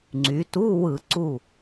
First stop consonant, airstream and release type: click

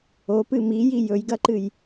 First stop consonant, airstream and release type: plain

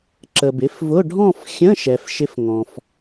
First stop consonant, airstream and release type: click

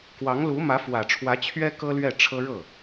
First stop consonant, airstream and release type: plain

